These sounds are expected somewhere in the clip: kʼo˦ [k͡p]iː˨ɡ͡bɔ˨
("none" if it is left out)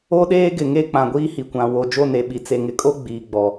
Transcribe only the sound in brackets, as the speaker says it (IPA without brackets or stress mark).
ɡ͡b